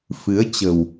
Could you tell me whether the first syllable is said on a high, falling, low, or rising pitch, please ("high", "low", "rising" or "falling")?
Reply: rising